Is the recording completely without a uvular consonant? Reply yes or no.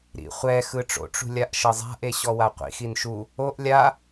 no